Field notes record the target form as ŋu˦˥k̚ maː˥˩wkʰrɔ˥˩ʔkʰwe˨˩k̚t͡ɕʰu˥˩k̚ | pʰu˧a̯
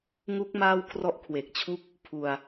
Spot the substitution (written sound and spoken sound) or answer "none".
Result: none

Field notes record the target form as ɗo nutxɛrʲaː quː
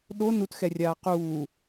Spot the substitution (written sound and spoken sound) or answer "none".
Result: none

